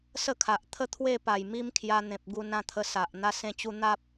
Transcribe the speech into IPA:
s ə˥˧ kʰ a˨ ʔ t̪ʰ ə˦ t̪ʰ w e˥˧ p a˨˩ j m i˦ m kʰ j a˧ n̪ ẽ˨ p̚ ɡ u˧ n ã˥˧ t̪ʰ ə˧ s a˨ ʔ n̪ a˦ s ẽ˧ t͡ɕ u˧ n̪ a˦ p̚

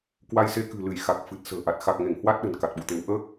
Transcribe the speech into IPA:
k w a˧ j s e˧ k ɨ̤˨˩ l ɨ˧˩ j x a˨˩ k̚ f ɨ˨˩ t̚ s ə̤ː˨˩ ʔ a˨˩ t̚ x a˨˩ k̚ ŋ e˧˩ ŋ h w a˦˥ t̚ ɗ ə̤˨˩ n k a˨˩ t̚ ɓ ṵ˧˨ t̪ e˨˦ w ʔ əː˦˥ k̚

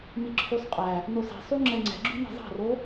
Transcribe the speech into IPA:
m i ǁʰ y sˤ qʼ æ | n o s ɛ̤ sˤ y ŋ͡ǁ ɛ ŋ͡ǀ ɛ̤ ɡ͡ǁ y n ɛ̤ zˤ ɑ̤ r o

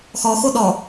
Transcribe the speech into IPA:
x ɔ x o ɗ ɔ

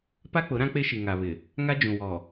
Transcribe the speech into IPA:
p a˦ k͡p ʊ˨˦ ɾ ã˦ k͡p e˦ ʃ i˨ ŋ a˨ β ɪ˨ | ŋ a˦ d͡ʒ ũ˨ w ɔ˨

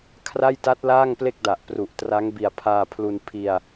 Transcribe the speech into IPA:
kʰ r a˥˩ j t a˦˥ t̚ l aː˥˩ ŋ p l e˥˩ k̚ d a˨˩ ʔ p r u˨˩ ʔ t r a˦˥ ŋ b i˨˩ a̯ pʰ aː˧ pʰ l u˧ n pʰ i˧ a̯

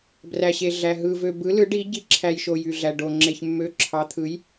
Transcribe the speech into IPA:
b r æ˩ ɕ e˩ ɮ æ˩ ɦ ɯ˩ v ø˩ b ɯ˩˧ l ɯ˩˧ ɖ i˩˧ ɟ i˩˧ ǁʰ æ˩ j ʃ o˩ j y˩ ɮ æ˩ ɖ o˩ ŋ͡ǁ e˩ ç mː ø˩˧ ǁʰ ɑ˩˧ t̪ʰ ɯ˩˧ j

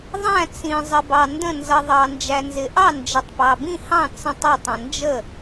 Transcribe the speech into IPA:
ðˤ æ̃˥˩ t͡s ĩ˨ zˤ ə˨ b ɑ˨ n d ə̃˥˩ n z ʌ˨ ðˤ ɑ˨ n d͡ʒ æ˨ n z ɪ˨ ʔ ɑ˥˩ n d͡ʒ ə˨ tˤ p ɑ˨ b ĩ˥˩ h ɑ̃˥˩ t͡s ə̃˥˩ tˤ ɑ˥˩ tˤ ə̃˨ n d͡ʒ ə˥˩

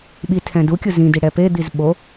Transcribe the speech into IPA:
ɓ i tʰ ɛ̃ d u kʲ ɯ z ĩ d i ɽ ɛ p e d̪ i z ɓ o

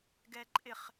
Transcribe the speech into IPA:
ɡ ɛ ǃʼ ɪ χ

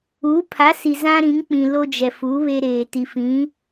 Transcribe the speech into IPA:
uː˨˦ pʰ a˨˦ s i˨ z ã˦ ɾ ĩ˨˦ ŋ k͡p ĩ˨ l o˦ d͡ʒ ɛ˨ f u˨˦ β e˦ ɾ eː˨ t i˨ f ĩ˨˦

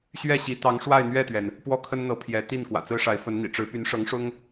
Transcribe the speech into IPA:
ɕ ɥ ɛ˥˩ ɕ i˧˥ t̪ ɑ˧˥ ŋ ʂ w a˥˧ ɪ̯ n̪ ɥ ɛ˥˩ t̪ ɥ ɛ˩ n | p w ɔ˥˩ kʰ ə˥ n n̪ ɤ˧˥ pʰ j ɛ˧˥ t̪ i˥˩ n k w ä̰˨˩ t͡s ɹ̩˥ ʂ a˧˥ ɪ̯ f ə˧˥ n n̪ ḭ˨˩ ʈ͡ʂ ɻ̩˧˥ p y˧˥ n ʂ ɤ˧˥ ŋ ʂ ʊ˥ ŋ

